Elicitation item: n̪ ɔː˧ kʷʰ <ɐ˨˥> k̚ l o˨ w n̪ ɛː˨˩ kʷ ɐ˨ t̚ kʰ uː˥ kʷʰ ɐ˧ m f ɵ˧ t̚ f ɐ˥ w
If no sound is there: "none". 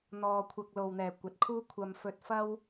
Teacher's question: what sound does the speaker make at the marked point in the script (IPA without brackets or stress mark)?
ɐ˧